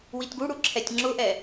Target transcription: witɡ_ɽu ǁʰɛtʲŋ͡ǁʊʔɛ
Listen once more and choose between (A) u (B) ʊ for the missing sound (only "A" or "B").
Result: A